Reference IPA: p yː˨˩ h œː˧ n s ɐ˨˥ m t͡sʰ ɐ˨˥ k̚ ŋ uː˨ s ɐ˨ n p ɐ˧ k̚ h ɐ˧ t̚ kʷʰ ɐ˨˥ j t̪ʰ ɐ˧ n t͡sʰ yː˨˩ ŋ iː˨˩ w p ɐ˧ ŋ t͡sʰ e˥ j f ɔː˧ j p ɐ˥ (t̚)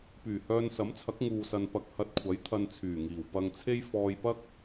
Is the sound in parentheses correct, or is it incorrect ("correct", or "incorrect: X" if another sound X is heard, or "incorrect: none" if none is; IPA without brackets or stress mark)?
incorrect: k̚